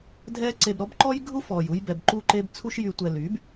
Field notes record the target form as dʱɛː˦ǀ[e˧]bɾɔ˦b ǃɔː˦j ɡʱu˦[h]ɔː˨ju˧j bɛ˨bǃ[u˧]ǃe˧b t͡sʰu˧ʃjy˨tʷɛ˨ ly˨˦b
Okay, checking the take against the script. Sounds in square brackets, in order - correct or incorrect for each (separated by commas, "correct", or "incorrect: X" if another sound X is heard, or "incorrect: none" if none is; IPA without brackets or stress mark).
correct, incorrect: f, correct